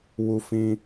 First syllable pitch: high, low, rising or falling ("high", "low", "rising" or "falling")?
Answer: high